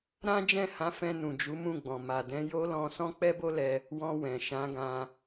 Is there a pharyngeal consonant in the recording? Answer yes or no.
no